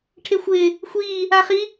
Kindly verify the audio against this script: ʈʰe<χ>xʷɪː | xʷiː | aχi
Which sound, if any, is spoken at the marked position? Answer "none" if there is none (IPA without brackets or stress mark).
none